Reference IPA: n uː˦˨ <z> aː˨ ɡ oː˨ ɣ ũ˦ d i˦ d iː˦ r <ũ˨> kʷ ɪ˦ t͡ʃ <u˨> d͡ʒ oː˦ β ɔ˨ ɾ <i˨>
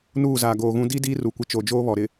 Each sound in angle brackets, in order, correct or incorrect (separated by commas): correct, incorrect, incorrect, incorrect